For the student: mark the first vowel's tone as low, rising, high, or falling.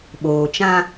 low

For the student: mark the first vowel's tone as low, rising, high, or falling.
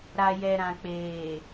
low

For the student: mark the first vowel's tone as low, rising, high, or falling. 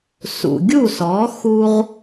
low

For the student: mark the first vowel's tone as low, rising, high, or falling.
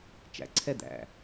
low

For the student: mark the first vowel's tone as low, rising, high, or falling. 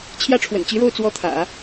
high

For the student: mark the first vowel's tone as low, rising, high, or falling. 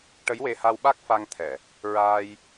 rising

